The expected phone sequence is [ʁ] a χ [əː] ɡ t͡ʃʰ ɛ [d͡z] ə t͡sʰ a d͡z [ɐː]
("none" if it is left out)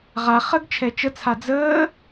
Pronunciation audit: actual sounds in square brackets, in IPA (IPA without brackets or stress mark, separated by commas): ʁ, ə, t͡ʃ, əː